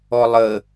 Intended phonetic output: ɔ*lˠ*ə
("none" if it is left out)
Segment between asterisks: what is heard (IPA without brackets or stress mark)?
lˠ